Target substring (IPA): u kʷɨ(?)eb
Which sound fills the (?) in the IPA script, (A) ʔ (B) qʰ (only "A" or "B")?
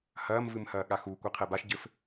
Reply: B